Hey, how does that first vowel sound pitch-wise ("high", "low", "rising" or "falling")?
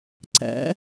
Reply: rising